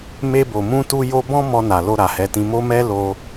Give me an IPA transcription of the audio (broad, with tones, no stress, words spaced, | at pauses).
me˧bo˨mũ˧tu˧ jo˧bɔ̃˦ mɔ˧na˨lo˧ ɾa˨hɛ˨˦tĩ˧ mo˦mɛ˦ lo˧